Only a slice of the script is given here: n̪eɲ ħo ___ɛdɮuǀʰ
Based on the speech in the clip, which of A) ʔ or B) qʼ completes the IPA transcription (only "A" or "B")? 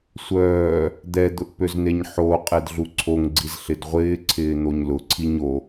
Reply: B